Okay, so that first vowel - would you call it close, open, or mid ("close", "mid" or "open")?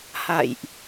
open